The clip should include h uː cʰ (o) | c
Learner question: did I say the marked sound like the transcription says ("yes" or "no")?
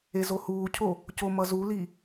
yes